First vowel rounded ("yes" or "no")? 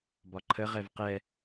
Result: yes